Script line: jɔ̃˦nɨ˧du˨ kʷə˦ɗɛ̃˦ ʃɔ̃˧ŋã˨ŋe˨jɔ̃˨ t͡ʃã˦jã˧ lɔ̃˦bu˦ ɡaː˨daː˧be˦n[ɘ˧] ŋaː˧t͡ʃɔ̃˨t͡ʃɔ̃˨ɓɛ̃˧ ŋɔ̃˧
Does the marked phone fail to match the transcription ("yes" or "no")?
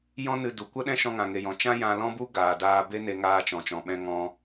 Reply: yes